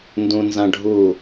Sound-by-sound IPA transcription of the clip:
n d ũ n z ɐ̃ ɖʱ u

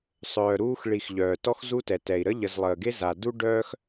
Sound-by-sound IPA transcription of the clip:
sˤ œː˩ ɾ uː˦ x ɭ i˨ x ʎ œː˩ t ɔ˥ x z u˥ t ɛ˩ t ɛ˩ i̯ ɾ ə˥ ʎ ə˨ z lˠ əː˩ ɡ e˥ z a˩ d u˥ ɖ œː˥ x

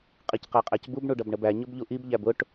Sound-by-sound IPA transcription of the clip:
qʼ i c q æ qʼ æ c b u b ɳ u ɖ ʌ b ɳ ə b æ ɲ ʊ b ʎ u ʔ i b ʎ æ b ʊ ʈ

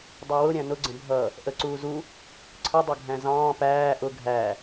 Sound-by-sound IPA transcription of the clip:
dˤ u w ʊ ɾʲ æ̃ n ʊ ɡ͡ǀ ə̃ bʱ ʌ | ʔ ə ǀ uː z u | ǀʰ ə dˤ ʌ ɡʱ æ̃ z ɑ̃ː p æː ʔ ʊ ɡʱ æ

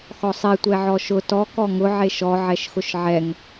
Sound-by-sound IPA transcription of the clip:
x ɔ sˤ e tʷ ɛ ʕ ɔ ʃ ʊ t ɔ k ɔ ŋ ʊ ʕ e ʃ ɔ ʕ ɛ ʃ x ʊ ʃ ʕ ɛ ŋ

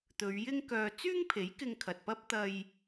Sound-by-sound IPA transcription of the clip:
t̪ ɵ˨˧ ɥ j ɪ˥ ŋ k œː˧ t͡s yː˥ ŋ pʰ e˨˥ j k ɪ˧ ŋ kʰ ɐ˨ t̚ p ɐ˥ p̚ t̪ ɐ˧ j

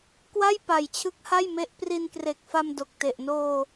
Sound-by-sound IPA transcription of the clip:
k w a˥˩ j p a˨˩ j t͡ɕʰ ɯ˦˥ k̚ h a˥˩ j m e˦˥ ʔ p r i˧ n k r e˨˩ k̚ f a˧ m d o˨˩ k̚ t e˨˩ ʔ n oː˧

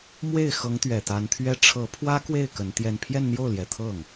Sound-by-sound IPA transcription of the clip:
m w e˥˩ ɪ̯ x ɤ˧˥ ŋ t̪ ɥ ɛ˨˩ t̪ a˧˥ n t̪ʰ ɥ ɛ˥ ʈ͡ʂʰ ɤ˧˥ pʰ w ä˥ k w e˥˩ ɪ̯ k ə˧˥ n t̪ j ɛ˥˧ n pʰ j ɛ˥˧ n n̪ j o˥˩ ʊ̯ l j ɛ˨˩ t̪ʰ ɤ˥˩ ŋ

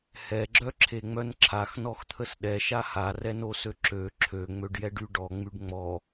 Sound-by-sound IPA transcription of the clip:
h ɛ ɡ͡ǁ œ ǁʰ e ŋ͡m œ n ǁʰ a x n ɔ x t̪ʰ ə s ɗ ɛ ʃ a h a r ɛ n o s ø ǁ ø ǁʰ ø ŋ͡m ø ɖ j ɛ ɖ y ɖ ɔ ŋ͡m y ɖ ŋ͡m ɔ

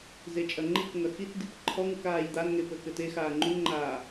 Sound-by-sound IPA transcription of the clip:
z e t͡ʃʼ ɐ ŋ͡ǃ i k ŋ ɐ x i t d i p ǃʰ ɔ ŋ u k aː j d̪ a n ŋ e p ɘː k ɘ t e x aː ŋ͡ǃ u n ŋ͡ǃ aː

